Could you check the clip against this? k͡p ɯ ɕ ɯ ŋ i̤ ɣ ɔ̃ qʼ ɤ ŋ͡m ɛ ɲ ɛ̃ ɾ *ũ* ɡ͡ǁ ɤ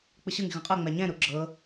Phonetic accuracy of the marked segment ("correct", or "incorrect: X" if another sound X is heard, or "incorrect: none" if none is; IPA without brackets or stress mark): incorrect: u